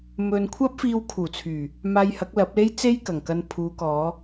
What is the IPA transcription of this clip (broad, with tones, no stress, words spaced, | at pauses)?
mɵ˧n kʷʰɐ˥p̚fiː˧wkʰuː˨˩t͡sʰyː˨˩ | maː˧jhɐ˨˥k̚lɐ˨˥p̚le˥j t͡se˥jkɐ˨˩ŋkɐ˧n pʰuː˨˧kɔː˨˧